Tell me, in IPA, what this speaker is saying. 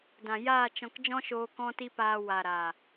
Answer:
dã˨jaː˦˨t͡ʃɔ̃˧k d͡ʒɔ̃˦ʃoː˧ kɔ̃˦ti˦paː˧ wa˨ ɾa˨

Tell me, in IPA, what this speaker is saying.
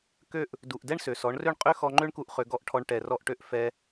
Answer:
kø˦ʔ | du˨ʔ dɛ˦ɳsø˨sɔ˨˦ɳrø˦ɳ qʼø˦xɔ˧ŋ͡ǃø˦ɳku˧ʔ χø˧ɡɔ˦˨ʔʈʰɔ˧ɳ ʈɛ˨rɔ˧ʔʈø˧ʔ fɛ˧

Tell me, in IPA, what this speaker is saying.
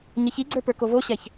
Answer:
ɲəçiɡ͡ǀə˞ pə˞kovoɕɛç

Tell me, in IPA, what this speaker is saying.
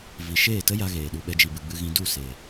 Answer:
vi˨ ʃeː˦˨ tə˦ja˧ ɣeː˨ɗu˧ ɓɛ˧d͡ʒi˨bɨ˨ɡ͡bɨ˧ ɣĩ˧du˦˨ se˨

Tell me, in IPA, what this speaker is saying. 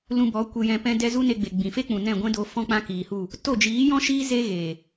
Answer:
lũ˧bɔ˨˦ kʷe˧jɛ̃˧pɛ̃˦dɛ˦ zu˦ne˧ɡ͡be˨ ɡ͡bĩ˨fe˦k͡pũ˨ nɛ̃˦˨ɡʷɛ̃˦do˧ fɔ̃˦k͡pã˦kiː˨hu˦˨ | to˦˨d͡ʒiː˨˦jɔ̃˦ʃiː˦ ze˦ ɣeː˨

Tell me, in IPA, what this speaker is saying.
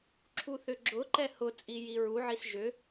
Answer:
ǁʰuθʏɡ͡ǁʊǃɛ hʊ t͡sʼijiɹuʕis ʒʏ

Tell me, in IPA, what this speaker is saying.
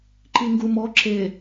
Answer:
ǃiŋɡumɔ ǁe

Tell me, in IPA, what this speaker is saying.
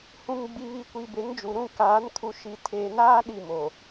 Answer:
hũ˨ŋɡ͡bi˨βi˨ kʷi˨be˨˦ŋd͡ʒu˨ ɾũ˦˨kaː˨˦n kʰu˨ʃi˨tʰeː˨naː˦ ɗi˦˨mo˨

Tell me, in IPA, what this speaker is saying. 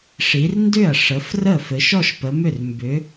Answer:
ʂi˨˦rndʏ˥˩ɐ̯ ʂə˨˦frə˥˩ fɘ˨˦ʃɔ˥˧ʃpə˨˦mʏ˥˩r mbʏ˨˦

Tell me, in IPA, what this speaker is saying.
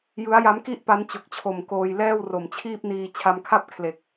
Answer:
jɯ˦˥a̯ja˦˥mki˥˩ʔpa˦˥n t͡ɕo˨˩k̚t͡ɕʰo˨˩mkoː˧j lɛː˥˩w ro˨˩mt͡ɕʰiː˥˩p̚niː˧ t͡ɕʰa˧mkʰa˥˩p̚kʰle˨˩k̚

